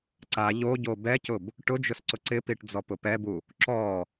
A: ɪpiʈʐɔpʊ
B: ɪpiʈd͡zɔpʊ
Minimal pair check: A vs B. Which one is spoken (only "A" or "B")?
B